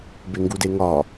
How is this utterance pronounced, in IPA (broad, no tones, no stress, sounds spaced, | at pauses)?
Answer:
b e ŋ ɡ u d e ŋ ɒ